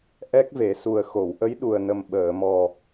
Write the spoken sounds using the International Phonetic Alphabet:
ʔɛ˦˥k̚ve˨˩˦su˨˩ə̯ xo˨˩˨wʔə˧˥j ɗu˨˩ə̯nə˨˩m ɓəː˨˩˨mɔ˨˩

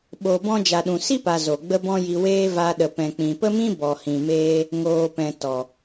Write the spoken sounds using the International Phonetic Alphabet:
ɓo˧bɔ̃˦ d͡ʒa˨ɗũ˨si˦pa˨ zo˨ɡ͡bə˦ bɔ̃˦ji˧weː˦ va˧ɗə˨ pɛ̃˨k͡pĩ˨pə˦mĩ˦ bɔ˨hĩ˨meː˧ | ŋoː˨pɛ̃˨ tɔ˨

